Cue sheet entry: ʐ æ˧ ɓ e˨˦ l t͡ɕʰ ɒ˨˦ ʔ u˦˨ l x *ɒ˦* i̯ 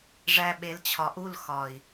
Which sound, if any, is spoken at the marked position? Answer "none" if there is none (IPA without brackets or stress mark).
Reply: ɒ˨